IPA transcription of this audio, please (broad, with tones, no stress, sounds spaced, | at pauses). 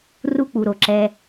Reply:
r u˦ k͡p u˨ ɾ o˨ ǁ ɛ˧